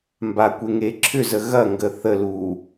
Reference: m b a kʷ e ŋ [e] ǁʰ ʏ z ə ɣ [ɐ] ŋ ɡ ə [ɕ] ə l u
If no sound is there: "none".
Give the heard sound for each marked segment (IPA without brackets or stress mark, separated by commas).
e, ɐ, θ